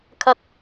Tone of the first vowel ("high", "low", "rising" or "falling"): high